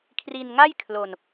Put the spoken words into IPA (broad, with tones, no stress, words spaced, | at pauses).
kʰri˧nŋa˥˩j kʰlo˧n